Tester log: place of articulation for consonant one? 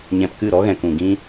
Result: palatal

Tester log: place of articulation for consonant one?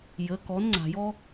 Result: palatal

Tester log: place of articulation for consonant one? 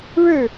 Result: retroflex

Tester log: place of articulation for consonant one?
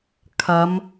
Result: velar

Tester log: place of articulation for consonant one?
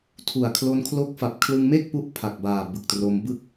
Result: alveolar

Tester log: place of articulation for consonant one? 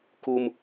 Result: velar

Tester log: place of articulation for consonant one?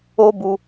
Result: labial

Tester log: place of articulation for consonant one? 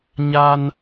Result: palatal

